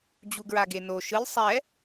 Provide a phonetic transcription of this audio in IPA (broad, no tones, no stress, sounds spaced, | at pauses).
d͡ʑ u ɡ ɹ a ɡ e n o ʃ ɯ lʲ sˤ ɛ